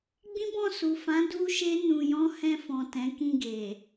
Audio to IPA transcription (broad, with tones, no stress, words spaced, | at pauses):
ɡ͡bĩ˦bɔ̃˦˨su˨ fã˨˦ du˦ʃe˦ nũ˧jɔ̃˦ hɛ̃˧fɔ̃˨ tɛ̃˨˦ kĩ˧ɡe˨